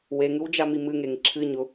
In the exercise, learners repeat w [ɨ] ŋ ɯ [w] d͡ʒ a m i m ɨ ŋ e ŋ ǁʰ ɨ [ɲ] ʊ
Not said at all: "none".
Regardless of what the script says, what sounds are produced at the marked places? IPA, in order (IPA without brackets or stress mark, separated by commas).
e, w, ɲ